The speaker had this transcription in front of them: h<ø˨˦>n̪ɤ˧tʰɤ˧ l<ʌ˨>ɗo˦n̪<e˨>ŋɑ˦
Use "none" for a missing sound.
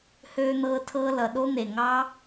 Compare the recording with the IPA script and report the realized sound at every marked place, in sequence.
ø˧, ʌ˨, e˨

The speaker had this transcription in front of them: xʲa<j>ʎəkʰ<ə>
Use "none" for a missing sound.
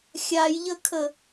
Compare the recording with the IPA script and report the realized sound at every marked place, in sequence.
j, ə

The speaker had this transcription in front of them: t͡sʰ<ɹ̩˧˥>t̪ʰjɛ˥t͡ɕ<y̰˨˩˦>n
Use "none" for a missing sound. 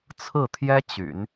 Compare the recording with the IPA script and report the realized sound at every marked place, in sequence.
ɹ̩˥˩, y̰˨˩˦

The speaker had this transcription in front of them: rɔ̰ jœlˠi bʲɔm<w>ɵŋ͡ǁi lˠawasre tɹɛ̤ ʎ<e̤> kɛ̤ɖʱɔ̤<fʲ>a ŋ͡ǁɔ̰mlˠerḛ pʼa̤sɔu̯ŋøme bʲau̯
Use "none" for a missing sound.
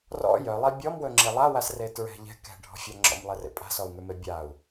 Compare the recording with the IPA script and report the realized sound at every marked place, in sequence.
w, ɛ̤, fʲ

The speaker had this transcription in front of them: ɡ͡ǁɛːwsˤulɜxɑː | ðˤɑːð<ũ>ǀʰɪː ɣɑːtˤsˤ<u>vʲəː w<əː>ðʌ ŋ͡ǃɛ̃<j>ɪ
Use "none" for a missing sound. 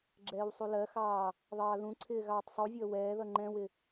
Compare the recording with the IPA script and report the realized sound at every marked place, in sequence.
ũ, u, ɛː, w

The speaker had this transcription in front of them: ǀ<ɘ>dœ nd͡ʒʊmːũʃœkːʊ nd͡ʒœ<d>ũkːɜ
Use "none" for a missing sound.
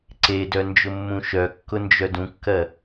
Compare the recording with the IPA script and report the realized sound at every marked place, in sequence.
e, d

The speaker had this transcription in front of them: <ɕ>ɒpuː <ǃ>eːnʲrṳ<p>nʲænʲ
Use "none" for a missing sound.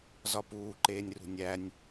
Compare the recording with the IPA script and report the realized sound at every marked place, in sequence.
z, ǃ, none

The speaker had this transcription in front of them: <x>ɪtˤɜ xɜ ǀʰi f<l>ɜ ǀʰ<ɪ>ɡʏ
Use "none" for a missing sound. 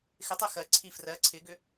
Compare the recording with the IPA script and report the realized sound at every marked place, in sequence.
x, r, ɪ

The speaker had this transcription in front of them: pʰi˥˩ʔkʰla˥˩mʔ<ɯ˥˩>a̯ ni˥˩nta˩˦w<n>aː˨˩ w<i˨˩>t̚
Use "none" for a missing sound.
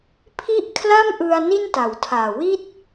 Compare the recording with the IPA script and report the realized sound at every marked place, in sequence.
ɯ˧, tʰ, i˥˩

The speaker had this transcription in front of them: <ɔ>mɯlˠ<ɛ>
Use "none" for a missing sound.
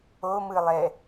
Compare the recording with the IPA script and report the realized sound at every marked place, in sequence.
o, ɛ

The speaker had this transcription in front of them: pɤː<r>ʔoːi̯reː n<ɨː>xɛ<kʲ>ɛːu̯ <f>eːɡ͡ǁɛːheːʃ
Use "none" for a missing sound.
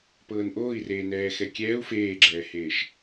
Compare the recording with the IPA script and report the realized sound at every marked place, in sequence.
n, ɛː, kʲ, f

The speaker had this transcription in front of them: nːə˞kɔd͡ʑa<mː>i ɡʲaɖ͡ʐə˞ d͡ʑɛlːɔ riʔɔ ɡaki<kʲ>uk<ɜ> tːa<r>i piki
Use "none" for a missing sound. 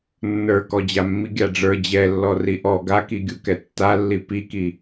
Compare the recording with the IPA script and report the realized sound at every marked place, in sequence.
mː, ɡʲ, ɛ, lː

